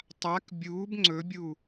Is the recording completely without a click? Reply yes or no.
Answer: no